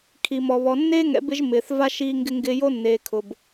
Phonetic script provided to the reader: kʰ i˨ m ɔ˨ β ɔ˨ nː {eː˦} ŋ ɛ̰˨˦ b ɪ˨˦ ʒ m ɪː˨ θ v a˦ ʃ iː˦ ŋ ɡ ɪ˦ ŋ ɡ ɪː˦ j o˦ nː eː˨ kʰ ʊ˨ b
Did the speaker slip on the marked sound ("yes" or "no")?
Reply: no